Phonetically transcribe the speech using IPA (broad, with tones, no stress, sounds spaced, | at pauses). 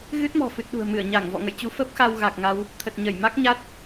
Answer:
ɣ ɨ˦˥ t̚ m ɔ̤˨˩ f ɨ˨˩ t̚ ɗ ṳ˨˩ ə̯ m ɨ˧˩ ə̯ ɲ a˧˩ ŋ v ɔ̰˧˨ ŋ ə̰˧˨ j t͡ɕ u˧ f ə˦˥ p̚ x a˧ w ɣ a˨˩ k̚ ŋ a˧ w | t̪ʰ ə˨˩ t̚ ɲ ə˧˩ j m a˦˥ k̚ ɲ a˦˥ t̚